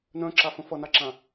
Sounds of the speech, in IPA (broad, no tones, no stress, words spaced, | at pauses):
nœ̃ǁafə̃ fʌnaǁã